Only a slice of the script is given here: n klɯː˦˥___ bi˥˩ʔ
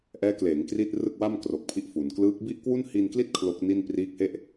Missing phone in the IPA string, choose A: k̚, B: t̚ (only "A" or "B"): A